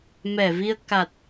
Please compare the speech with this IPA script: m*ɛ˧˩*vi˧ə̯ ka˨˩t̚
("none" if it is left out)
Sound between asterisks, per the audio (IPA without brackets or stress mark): ɛ˧˩